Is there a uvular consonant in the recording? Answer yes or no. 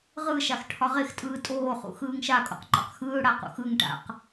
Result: yes